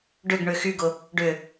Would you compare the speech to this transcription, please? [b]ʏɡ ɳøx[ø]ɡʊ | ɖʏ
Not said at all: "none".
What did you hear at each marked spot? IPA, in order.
ɖ, y

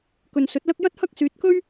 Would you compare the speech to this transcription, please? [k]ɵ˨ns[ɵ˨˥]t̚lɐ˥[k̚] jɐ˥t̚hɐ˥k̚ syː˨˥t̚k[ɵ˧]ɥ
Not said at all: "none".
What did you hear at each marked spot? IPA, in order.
k, ɵ˨˥, k̚, ɵ˥

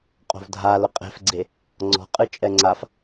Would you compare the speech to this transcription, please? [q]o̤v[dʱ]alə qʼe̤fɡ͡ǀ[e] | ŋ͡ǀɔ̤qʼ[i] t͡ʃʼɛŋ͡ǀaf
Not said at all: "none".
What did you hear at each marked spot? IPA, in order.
qʼ, dʱ, e, ɨ

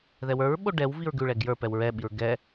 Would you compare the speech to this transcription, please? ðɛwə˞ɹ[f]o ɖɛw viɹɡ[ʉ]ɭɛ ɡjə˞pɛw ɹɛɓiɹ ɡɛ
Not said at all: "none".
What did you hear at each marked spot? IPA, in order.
ɓ, ʉ

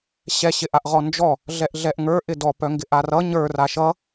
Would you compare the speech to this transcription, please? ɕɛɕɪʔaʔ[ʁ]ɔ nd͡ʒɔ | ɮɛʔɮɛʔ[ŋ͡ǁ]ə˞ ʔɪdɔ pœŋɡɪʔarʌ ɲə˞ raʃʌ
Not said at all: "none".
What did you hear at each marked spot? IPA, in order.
ʁ, ŋ

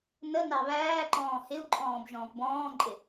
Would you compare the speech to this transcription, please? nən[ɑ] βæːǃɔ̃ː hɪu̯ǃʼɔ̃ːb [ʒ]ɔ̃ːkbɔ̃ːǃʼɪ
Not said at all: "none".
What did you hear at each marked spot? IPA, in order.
ɑ, ʒ

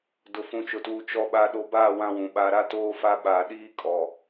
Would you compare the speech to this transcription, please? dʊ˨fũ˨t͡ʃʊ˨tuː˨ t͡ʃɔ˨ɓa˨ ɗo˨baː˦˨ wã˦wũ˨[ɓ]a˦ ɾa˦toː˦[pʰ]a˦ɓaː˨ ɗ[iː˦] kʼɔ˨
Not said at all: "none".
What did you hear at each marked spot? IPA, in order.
ɓ, f, iː˦

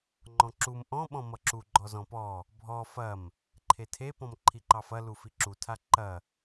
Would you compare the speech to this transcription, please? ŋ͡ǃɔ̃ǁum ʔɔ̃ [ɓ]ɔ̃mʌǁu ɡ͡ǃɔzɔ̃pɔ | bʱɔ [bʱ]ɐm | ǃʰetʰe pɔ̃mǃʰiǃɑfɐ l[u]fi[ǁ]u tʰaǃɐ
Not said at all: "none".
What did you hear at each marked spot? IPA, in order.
ɓ, f, u, ǁ

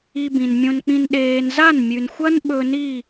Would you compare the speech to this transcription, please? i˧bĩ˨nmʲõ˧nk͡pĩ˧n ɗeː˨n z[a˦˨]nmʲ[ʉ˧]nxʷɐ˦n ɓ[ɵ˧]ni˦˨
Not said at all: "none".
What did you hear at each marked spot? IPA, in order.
a˦˨, ʉ˨, ɵ˧

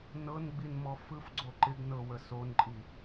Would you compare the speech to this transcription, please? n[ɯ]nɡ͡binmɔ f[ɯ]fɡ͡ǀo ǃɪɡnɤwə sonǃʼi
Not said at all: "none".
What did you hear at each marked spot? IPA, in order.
ɤ, ɯ

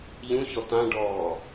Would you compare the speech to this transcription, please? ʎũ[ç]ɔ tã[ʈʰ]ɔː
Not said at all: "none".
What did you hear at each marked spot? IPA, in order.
ç, ɖ

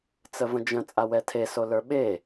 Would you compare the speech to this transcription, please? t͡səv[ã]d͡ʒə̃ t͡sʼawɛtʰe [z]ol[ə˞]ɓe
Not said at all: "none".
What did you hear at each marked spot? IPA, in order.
ə̃, s, ə˞

